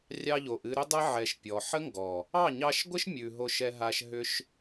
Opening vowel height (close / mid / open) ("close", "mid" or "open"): open